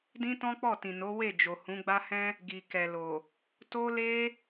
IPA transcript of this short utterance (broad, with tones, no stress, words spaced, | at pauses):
dĩ˦tɔ̃˦k͡pɔ˦˨tĩ˨ no˨˦we˦˨d͡ʒo˨ hũ˨˦ɡ͡ba˦hɛ̃˦ | ɡi˨kɛ˨lo˨ | to˦le˦